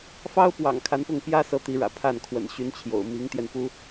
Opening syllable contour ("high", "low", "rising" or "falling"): high